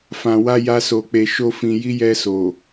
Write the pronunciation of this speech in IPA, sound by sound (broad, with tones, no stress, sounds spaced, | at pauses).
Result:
f ã˨ w a˧ j a˧ s o˨ k͡p e˨ ʃ o˧ f ĩ˨ j i˧ j ɛ˧ s o˨